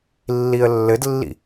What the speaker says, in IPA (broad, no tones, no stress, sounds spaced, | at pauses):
lː i ə̯ lː ɘ d lː ḭ